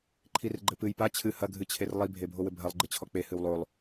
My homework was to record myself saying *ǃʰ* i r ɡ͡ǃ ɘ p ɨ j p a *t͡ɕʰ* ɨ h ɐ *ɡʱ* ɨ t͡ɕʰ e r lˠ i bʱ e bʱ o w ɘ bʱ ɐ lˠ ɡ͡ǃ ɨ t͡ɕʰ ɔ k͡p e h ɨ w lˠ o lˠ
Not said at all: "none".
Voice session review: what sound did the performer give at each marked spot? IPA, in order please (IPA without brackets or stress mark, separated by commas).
ǃʰ, t͡ɕʰ, ɡʱ